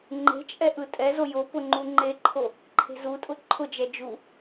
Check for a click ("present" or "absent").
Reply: present